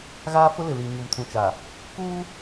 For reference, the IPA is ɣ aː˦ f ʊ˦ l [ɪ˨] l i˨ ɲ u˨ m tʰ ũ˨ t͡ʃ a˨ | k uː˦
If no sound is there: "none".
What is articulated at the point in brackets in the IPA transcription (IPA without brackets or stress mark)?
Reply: ɪ˨